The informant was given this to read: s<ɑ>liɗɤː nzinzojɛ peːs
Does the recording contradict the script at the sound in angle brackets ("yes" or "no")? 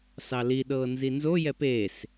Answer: no